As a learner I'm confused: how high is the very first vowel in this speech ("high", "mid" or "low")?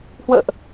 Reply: mid